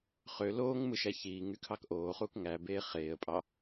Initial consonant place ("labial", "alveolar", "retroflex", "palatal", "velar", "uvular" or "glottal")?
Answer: uvular